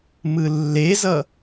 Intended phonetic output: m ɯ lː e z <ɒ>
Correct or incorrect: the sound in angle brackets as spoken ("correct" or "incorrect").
incorrect